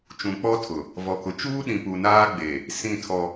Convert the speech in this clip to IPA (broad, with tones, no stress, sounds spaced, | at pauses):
t͡ʃ ũ˨ k͡p ɔ˦ tʰ ʊ˨ | v ɔ˨ k ʊ˨ t͡ʃ uː˦ ɗ ĩ˨ p u˨ n aː˦ ɡ͡b e˨ | s ĩ˦˨ tʰ ɔ˦